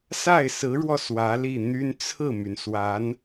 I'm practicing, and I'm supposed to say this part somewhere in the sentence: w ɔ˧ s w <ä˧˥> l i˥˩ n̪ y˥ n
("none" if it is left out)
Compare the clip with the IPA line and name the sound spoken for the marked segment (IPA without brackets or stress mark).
ä˧˥